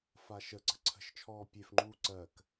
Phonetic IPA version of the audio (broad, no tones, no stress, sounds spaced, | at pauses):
f a ʃ ə ǀ ə̤ ǀʰ ə̤ ʃ t͡ʃʰ ɔː pʲ e f ŋ͡ǃ uː ǀ ɜ k